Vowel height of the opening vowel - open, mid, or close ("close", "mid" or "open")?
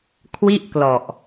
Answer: close